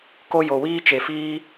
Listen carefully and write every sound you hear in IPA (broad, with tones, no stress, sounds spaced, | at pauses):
k o˦ j o˧ w iː˦ t͡ʃ e˧ f iː˦